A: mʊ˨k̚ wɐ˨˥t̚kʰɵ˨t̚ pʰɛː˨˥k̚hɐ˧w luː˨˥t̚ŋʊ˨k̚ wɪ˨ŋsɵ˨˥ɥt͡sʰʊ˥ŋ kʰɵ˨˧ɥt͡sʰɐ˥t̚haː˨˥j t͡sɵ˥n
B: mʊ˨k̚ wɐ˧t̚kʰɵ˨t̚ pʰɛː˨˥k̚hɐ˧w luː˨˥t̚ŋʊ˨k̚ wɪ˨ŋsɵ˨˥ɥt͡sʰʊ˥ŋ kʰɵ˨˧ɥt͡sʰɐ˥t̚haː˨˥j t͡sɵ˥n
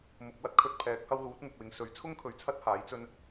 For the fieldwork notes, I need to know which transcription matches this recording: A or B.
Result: B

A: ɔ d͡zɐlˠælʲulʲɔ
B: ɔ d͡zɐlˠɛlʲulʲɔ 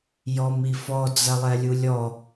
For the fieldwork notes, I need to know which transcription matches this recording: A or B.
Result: B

